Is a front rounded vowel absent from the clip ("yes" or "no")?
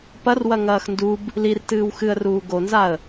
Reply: yes